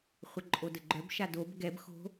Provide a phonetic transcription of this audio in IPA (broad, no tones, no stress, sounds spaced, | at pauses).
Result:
χʷ ə ǃʼ o d ə ɡ͡ǃ œ b ʃ a d o b ɡ ɛ b x o̤